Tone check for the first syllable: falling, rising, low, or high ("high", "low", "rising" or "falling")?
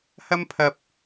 high